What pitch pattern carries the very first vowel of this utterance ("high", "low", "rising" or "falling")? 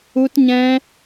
high